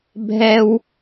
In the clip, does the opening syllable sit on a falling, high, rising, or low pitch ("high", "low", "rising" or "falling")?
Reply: high